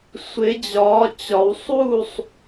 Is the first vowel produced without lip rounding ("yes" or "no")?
yes